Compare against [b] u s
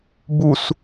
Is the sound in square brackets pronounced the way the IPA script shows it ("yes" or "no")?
yes